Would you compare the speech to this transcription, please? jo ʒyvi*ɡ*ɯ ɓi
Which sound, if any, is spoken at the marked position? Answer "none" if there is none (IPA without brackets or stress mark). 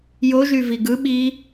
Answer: ɡ